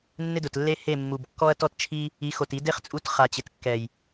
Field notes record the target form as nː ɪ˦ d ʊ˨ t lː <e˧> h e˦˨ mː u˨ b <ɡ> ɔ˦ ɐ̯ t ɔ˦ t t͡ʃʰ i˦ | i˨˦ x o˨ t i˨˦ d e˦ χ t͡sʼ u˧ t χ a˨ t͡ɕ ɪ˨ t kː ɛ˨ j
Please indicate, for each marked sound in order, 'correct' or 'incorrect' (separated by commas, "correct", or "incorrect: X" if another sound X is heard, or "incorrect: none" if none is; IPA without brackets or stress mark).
incorrect: e˦, incorrect: kː